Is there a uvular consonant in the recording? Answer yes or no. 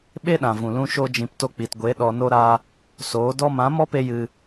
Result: no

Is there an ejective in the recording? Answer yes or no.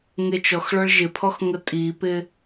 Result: yes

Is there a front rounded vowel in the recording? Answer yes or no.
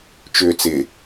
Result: yes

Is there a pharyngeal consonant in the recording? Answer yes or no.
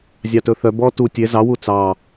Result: no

